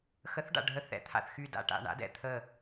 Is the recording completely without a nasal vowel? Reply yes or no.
yes